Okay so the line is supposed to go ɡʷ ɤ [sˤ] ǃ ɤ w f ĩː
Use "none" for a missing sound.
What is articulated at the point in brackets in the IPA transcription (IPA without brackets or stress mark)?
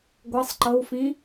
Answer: sˤ